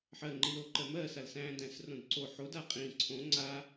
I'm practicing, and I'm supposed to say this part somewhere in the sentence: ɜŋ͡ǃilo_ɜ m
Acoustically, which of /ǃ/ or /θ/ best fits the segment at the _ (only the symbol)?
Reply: ǃ